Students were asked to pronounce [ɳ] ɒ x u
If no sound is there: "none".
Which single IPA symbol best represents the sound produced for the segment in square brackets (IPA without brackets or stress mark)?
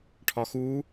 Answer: ʈʰ